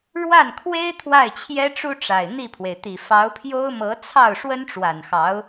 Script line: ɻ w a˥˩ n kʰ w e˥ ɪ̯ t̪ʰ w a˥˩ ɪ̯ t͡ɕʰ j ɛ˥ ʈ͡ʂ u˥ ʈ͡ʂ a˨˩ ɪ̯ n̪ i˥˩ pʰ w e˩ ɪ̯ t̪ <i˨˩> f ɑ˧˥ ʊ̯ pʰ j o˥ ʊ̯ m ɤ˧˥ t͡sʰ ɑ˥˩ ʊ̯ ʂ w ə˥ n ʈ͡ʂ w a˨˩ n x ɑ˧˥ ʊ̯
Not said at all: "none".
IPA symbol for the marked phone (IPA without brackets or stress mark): i˨˩